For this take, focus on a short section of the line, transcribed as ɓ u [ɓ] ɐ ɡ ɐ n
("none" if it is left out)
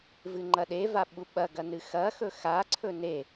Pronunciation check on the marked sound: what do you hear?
ɓ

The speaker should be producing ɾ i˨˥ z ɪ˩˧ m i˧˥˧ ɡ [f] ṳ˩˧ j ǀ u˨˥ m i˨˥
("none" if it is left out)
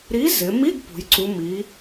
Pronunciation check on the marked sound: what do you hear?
p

